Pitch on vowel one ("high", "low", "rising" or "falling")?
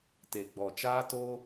low